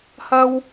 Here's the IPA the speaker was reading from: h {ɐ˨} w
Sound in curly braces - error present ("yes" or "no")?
yes